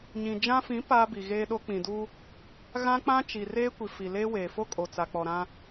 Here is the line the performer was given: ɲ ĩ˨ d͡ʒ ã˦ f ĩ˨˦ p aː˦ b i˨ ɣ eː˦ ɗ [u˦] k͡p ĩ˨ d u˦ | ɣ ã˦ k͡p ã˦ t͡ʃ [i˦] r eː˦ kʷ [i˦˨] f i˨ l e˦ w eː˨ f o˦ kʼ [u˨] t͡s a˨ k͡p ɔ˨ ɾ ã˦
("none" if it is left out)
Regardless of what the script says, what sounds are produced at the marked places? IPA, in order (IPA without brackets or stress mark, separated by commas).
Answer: o˦, i˨, i˨, o˨